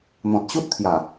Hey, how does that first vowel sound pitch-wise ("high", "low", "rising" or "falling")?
low